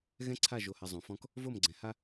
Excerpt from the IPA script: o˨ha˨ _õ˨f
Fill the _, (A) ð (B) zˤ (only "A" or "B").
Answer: B